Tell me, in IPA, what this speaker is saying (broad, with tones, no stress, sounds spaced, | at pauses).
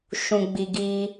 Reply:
ʃ ũ˨ ɡ͡b i˨ ɡ iː˦